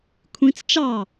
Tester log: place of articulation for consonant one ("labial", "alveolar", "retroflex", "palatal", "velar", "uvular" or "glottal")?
velar